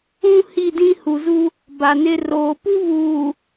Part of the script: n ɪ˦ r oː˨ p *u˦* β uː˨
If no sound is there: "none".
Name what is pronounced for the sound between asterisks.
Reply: u˦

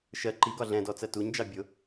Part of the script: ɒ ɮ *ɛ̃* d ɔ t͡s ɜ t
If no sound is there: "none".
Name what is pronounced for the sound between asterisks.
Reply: ɛ̃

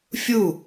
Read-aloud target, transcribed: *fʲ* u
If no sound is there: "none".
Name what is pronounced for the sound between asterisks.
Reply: fʲ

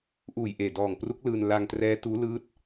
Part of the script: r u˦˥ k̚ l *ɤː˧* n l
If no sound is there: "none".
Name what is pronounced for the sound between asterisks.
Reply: ɯː˧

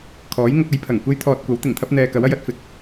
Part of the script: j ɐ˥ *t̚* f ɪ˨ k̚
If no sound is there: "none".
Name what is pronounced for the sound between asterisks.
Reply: t̚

